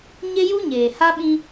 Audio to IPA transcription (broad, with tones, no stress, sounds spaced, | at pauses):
ɲ e˦ j u˦ ɲ eː˨ h a˦ ɓ ĩ˦